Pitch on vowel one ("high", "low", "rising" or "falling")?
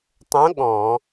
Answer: rising